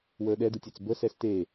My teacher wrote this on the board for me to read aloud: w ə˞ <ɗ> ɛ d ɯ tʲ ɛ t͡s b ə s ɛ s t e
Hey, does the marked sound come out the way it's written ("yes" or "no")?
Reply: yes